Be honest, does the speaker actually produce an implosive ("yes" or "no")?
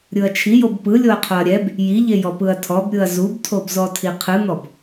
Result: no